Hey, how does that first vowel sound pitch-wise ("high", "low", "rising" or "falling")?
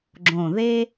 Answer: low